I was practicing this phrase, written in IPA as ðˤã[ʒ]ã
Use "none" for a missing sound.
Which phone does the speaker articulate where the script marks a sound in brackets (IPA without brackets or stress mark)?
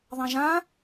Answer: ʒ